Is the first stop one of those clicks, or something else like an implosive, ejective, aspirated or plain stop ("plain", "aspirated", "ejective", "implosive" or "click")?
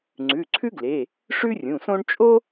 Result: click